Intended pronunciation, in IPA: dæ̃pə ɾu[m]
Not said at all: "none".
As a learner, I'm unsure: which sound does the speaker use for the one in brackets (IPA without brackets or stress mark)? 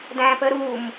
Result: m